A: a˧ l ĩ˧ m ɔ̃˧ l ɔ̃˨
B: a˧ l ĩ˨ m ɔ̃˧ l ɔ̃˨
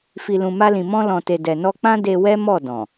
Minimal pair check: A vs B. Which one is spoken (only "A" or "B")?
B